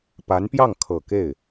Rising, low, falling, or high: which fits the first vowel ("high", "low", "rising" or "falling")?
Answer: rising